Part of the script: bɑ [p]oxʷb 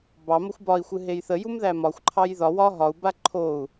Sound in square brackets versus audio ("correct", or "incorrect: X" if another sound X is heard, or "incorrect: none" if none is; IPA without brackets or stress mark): incorrect: m